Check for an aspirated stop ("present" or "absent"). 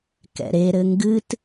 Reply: absent